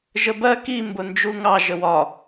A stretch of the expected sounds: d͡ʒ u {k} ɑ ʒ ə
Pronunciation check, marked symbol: incorrect: ŋ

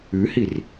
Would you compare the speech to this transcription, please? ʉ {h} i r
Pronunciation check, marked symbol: correct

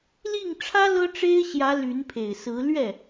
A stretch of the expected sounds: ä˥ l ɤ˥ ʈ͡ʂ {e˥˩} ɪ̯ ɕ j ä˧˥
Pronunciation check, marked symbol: incorrect: e˥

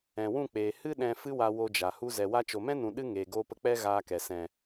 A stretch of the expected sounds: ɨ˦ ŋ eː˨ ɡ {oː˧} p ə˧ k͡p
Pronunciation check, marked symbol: correct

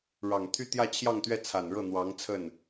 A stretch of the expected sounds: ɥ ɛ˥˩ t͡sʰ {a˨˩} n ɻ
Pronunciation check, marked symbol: correct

